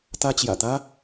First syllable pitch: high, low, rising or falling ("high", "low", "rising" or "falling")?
high